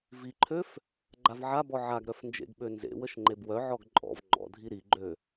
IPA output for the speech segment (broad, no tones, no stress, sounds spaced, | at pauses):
v i ǃʰ ø f | ɡ͡ǃ a v ʕ a b ɔ ʕ a ɡ ɾ œ f n d͡ʒ ḛ ɡ ɓ ø n z ḛ w ə ʃ ŋ͡ǃ e b w œ ʕ ɔ ɡ ǃʼ ɔ̰ v ŋ͡ǃ ɔ̰ dʱ i ɾ i ɡ͡ǃ ø